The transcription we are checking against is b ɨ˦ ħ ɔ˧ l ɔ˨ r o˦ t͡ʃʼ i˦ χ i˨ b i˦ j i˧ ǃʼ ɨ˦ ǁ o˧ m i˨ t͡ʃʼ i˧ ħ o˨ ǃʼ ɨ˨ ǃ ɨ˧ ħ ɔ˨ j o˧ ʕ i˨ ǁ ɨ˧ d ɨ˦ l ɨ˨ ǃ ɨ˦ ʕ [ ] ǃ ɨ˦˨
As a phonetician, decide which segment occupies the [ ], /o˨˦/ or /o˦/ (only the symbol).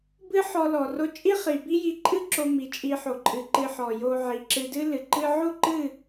o˦